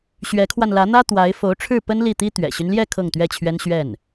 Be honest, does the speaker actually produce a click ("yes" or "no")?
no